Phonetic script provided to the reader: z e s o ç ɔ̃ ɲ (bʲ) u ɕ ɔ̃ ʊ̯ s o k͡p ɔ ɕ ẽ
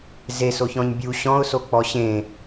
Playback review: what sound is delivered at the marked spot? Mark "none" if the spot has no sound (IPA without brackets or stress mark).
bʲ